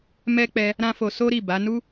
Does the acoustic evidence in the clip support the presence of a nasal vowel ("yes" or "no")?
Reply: yes